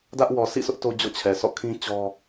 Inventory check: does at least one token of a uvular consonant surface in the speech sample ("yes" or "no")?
no